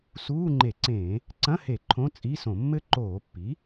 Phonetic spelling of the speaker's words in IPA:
suː˧˥˧ ŋ͡ǃe˧˩˧ǀẽː˧˩˧ | ǀɐ̃˧˥˧he˧˩˧ ǃʰõ˧˥˧t͡sʼi˧˥˧sõ˧˩˧mːɘ˥ ǃoː˧˩˧pːi˩˥

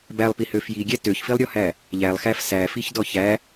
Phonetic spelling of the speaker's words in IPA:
bælˠpihø fjiɡʲæ tøçfilˠɾʲɔhæ | ʎælˠxæf sæfiçdɔ çæ

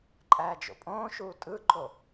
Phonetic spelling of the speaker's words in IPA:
ǃʼæːd͡ʒo̰pʼõːʃuː tʼɯǃo

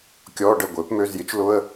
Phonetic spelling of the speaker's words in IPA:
kʲɔː˧˥˧ɖə˥˩ɡʷɪː˩˥pmø˧˥˧z jɪ˩˥t͡ʃlʊ˧˥˧ə̯

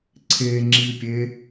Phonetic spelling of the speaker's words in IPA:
ǀʰeŋ͡ǁipʲe

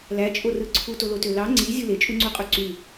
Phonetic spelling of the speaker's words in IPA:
læt͡ʃʼorɯ ǀʰutolotø lɑ ŋ͡ǀizʲɯ let͡ʃʼuŋ͡ǀuqʼø ǀy

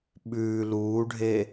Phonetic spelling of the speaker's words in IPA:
ɓʉː luːɖʱe

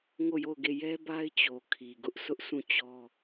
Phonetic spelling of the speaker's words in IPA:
ŋo˦˨jo˦˨ʊ̯ɡe˦˨ jɛ˦ba˦ɪ̯ t͡ɕo˨ kʰi˨ɡʊ˦ʔ sʰʊ˦ʔsũ˦˨ t͡ɕɔ˦

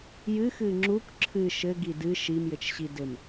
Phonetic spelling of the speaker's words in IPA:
jɨxɨ ŋ͡ǁuk ǁʰɨ ʃɘɡi dɨ ʃimjɘt͡ʃɕi dɘm

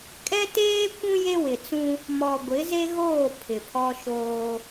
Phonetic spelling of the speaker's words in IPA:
kʼɛ˦teː˦ kʷũ˦ je˦wɪ˨t͡sũ˦ | mɔ˨ɡʷɪ˨˦ze˦ɣoː˦˨ pʰɪ˨pʰɔ˦ʃoː˦

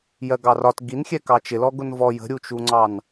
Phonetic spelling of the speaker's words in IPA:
jɜɡɑrɒt ɡinxʲɛkɑ t͡ʃɪlɔɡʊn vɔ jə̤ɾʲut͡ʃuŋ͡ǀɑn

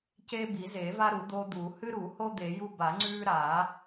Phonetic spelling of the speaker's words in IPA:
ceː˦bi˨˩˦zeː˨˩˦va˦ ɾu˨˩˦d̪oː˦d̪uː˨˩˦ hɨ˦ɾu˨˩˦ho˦ d̪e˨˩˦ju˦ ba˨˩˦ŋ͡ǀʉː˦ɾaː˨˩˦

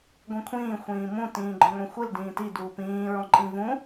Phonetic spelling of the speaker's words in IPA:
ɡʷĩkʷʰĩː xʷĩːmũ tĩːɡ͡ǃɔ̃ŋʷĩxʷɨl dĩːti duːpĩː ɹɔ̃ǃʼĩvũ

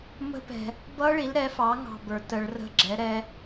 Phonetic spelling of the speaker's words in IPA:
mə̤˦˥ pɛ̤˨ | bʌ˦˥ɭi˩˥lɾɛ˩˥fɑ˩˥ ŋɑ̤˦˨bə˞˨˩˦ tə˨˩˦ɭrə̤˧˥˧ ɡ͡ǁɛ˩˥ ɾɛ˦˥

